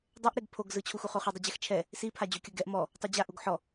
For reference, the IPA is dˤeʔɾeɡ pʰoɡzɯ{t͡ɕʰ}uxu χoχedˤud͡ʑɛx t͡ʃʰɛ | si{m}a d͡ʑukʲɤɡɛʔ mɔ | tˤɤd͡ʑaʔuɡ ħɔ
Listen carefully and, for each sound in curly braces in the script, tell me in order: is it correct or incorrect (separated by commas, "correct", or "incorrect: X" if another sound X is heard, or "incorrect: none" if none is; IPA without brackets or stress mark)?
correct, incorrect: pʰ